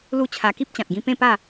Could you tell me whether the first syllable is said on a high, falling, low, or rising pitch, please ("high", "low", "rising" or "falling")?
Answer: falling